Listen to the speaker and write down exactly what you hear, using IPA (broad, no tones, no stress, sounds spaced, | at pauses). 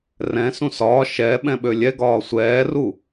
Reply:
r ɛ̃ s ũ s ɒː ʃ ɛ ɓ ɛ̃ ɓ ø lʲ ɛ ɡ ɒː sʷ ɛː r u